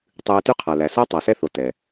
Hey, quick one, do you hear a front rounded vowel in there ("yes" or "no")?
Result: yes